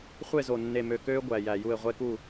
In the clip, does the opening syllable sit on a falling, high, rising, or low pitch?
falling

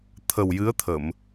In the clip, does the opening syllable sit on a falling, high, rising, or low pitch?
low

